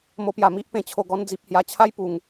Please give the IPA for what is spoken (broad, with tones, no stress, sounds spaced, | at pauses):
m o˧ p j a˨˩ m i˦ ʔ p ẽ˨˩ t͡ɕʰ o˨˩ ɡ ɔ˧ n d͡z i˨ p̚ h j a˨˩ t͡ɕʰ a˦ j p u˨˩ ŋ